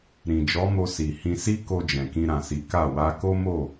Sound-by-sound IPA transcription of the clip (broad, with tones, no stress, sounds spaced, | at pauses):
ɾ ĩ˨ d͡ʒ ɔ˨˦ m o˧ s i˨ h ĩ˧ s i˦ k o˧ d͡ʒ ɛ̃˨ k ĩ˧ ɾ ã˨ s i˨˦ k a˦˨ w a˧ k o˦ m o˦˨